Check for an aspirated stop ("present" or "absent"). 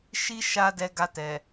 absent